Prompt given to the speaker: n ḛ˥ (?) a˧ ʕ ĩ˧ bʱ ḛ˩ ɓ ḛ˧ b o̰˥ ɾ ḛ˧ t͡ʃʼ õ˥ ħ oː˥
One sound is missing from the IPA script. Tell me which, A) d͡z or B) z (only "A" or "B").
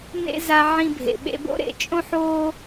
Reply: B